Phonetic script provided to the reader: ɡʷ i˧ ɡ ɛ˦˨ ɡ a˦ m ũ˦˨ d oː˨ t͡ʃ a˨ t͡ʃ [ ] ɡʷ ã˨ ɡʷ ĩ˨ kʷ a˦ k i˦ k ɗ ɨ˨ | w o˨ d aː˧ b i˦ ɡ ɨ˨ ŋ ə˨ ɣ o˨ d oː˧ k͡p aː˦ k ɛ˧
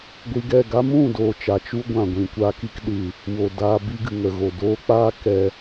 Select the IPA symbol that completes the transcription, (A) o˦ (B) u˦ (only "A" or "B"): B